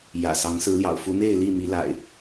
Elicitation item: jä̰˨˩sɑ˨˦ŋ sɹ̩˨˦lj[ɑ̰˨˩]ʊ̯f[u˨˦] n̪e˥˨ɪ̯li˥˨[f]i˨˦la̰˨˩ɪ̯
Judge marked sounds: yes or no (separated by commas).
yes, yes, no